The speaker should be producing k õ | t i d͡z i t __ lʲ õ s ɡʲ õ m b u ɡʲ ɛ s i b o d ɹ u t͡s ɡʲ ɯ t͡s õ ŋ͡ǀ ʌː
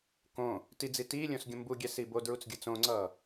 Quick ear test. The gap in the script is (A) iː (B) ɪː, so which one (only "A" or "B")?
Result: A